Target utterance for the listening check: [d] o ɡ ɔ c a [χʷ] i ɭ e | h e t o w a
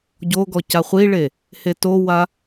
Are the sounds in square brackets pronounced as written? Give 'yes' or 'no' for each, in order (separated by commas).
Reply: no, yes